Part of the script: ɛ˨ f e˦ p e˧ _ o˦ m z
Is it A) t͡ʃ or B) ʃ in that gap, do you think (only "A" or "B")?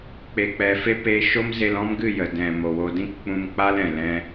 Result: B